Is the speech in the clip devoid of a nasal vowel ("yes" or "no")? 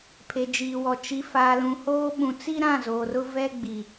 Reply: no